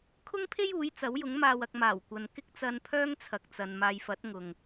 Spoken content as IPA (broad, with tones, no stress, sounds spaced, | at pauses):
kʰ ʊ˥ ŋ pʰ e˥ j uː˨˥ j t͡s ɐ˨˥ w j ʊ˨˥ ŋ m aː˨ w ɐ˨ k̚ m aː˨˩ w kʷ ɐ˨ n k ɪ˥ k̚ t͡s ɐ˧ n pʰ œː˥ ŋ t͡sʰ ɐ˨ k̚ t͡s ɐ˨ n m aː˨ j f ɐ˨˥ t̚ ŋ ʊ˨ ŋ